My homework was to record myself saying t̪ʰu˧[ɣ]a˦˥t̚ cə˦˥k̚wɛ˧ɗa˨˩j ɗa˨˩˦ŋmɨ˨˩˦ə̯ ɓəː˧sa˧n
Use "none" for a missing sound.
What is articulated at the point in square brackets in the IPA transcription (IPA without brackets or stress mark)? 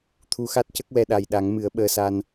x